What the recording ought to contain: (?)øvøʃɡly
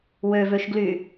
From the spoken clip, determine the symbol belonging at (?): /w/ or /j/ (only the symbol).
w